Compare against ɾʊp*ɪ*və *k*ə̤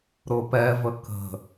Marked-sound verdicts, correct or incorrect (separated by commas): incorrect, correct